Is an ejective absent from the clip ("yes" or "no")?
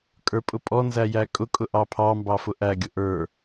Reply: no